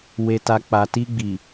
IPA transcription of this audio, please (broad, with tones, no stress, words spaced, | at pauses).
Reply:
we˨ta˨ k͡pa˨ti˧ ɡ͡bi˨